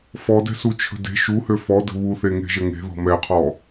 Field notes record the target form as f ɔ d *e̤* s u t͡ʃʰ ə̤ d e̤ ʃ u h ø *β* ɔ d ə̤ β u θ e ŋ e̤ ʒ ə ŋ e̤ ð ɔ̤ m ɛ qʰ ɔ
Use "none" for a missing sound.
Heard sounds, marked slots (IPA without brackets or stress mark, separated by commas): ɛ̤, f